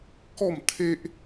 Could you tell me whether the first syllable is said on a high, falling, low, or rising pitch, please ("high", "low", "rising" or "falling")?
falling